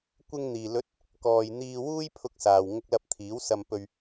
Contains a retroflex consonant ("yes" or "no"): no